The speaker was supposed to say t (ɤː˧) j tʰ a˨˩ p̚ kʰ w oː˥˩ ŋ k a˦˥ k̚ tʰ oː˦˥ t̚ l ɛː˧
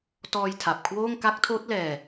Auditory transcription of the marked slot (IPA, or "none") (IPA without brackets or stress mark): ɔː˧